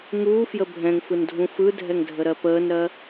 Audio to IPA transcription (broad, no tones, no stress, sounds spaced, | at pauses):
ŋ uː f j ə bʱ ɛ̃ ŋ f ɯ n dʱ ũ f ɯ dʱ ɛ ŋ dʱ ə ɾ ɜ p əː n ɾ ɜ